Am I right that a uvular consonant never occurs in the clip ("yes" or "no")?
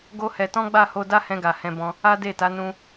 yes